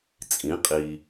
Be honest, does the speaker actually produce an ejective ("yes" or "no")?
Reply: yes